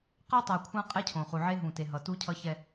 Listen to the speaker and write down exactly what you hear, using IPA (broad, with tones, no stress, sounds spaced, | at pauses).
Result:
q a˦ tˤ a˨ kʷʰ ã˦ qʼ ɛ˦ cʰ õ˨ χ u˨ ʕ e˦ ɦ ũ˨ t e˨ ɦ ʌ˨ t u˦ cʰ ʌ˦ ç ɛ˦